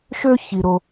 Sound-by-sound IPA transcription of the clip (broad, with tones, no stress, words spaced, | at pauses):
ʃø˥çi˩ɾo˩